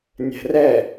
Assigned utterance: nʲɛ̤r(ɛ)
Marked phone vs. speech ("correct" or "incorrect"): correct